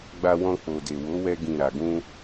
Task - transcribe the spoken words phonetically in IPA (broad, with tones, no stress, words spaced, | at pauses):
ɡ͡ba˧wɔ̃˧ k͡po˨de˨wo˨˦wɛ˧ ɡĩ˨ ɾa˨ɡũ˧